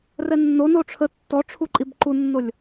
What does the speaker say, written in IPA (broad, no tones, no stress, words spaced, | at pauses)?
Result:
rɛnːo noʈ͡ʂʰə tːɔʈ͡ʂʰuǃʼib ǃunːolʲ